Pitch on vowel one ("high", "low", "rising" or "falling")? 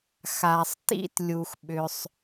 low